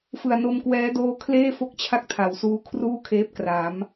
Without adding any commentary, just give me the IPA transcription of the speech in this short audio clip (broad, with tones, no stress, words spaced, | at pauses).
fɯ˨˩a̯no˧mkwɛː˦˥ doː˧ kʰleː˥˩fo˦˥k̚t͡ɕʰa˦˥k̚ tʰa˩˦wsuː˦˥ kʰruː˥˩kʰeː˦˥p̚ kra˩˦m